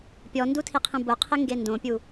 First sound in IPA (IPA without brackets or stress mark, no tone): pʲ